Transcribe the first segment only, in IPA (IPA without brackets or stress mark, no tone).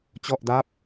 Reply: t͡ɕ